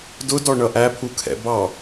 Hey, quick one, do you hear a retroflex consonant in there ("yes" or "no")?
yes